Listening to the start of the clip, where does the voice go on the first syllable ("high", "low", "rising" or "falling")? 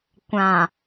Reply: low